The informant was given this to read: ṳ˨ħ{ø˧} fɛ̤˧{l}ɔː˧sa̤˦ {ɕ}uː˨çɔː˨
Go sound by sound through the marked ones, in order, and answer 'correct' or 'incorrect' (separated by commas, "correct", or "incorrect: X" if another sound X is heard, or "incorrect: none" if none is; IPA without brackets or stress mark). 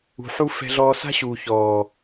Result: incorrect: u˧, incorrect: ɮ, correct